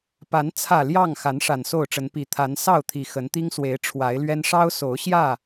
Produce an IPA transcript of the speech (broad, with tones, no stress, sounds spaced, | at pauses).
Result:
p a˨˦ n t͡sʰ ä˨˩ l j ɑ˥˨ ŋ x a˨˦ n ʂ a˨˩ n s o˥˨ ʊ̯ ʈ͡ʂ ə˨˦ n p i˨˩ t̪ʰ a˨˦ n s ɑ˥˨ ʊ̯ t̪ʰ i˨˩ x ə˨˦ n t̪ i˦ ŋ s w e˨˦ ɪ̯ ʈ͡ʂʰ w a˨˦ ɪ̯ l ɥ ɛ˦ n ʂ ɑ˦ ʊ̯ s o˨˦ ʊ̯ ɕ j ä˥˨